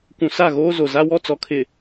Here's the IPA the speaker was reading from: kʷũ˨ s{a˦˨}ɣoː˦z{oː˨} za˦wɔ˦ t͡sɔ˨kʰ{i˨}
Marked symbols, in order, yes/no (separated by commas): yes, no, no